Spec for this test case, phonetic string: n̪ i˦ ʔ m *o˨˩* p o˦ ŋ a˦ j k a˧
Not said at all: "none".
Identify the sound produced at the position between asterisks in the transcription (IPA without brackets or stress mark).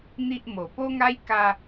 o˨˩